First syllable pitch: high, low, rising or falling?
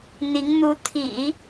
rising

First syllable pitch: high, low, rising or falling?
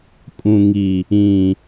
low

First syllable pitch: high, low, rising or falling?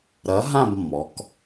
rising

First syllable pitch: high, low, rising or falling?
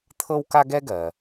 high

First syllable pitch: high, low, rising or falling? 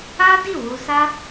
high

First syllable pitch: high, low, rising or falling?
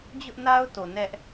high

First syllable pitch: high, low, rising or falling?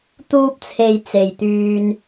high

